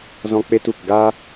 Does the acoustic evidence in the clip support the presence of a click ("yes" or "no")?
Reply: no